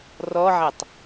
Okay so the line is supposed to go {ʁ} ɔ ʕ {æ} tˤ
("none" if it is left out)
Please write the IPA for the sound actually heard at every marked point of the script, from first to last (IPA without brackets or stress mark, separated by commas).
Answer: r, æ